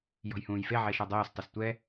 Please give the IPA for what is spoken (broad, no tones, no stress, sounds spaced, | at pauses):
j ɔ̤ j h ũː j f e ʕ e ʃ ɔ dˤ oː s tˤ ɪ s tʷ ɛ